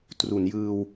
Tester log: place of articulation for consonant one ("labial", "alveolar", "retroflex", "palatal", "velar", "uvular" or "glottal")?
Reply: alveolar